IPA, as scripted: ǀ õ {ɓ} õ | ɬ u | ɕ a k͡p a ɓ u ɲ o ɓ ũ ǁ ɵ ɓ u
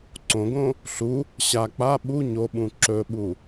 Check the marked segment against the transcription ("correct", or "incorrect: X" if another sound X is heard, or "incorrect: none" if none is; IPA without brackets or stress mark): incorrect: ɡ